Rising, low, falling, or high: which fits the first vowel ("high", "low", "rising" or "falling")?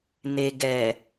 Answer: low